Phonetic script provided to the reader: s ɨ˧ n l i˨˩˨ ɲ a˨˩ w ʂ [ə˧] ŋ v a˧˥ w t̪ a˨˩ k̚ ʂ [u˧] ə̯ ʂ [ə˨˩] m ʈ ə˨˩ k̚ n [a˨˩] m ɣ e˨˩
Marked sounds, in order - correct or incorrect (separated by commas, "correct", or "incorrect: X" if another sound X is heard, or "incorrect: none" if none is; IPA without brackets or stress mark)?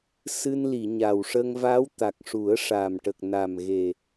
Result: correct, incorrect: u˨˩˦, incorrect: a˨˩, correct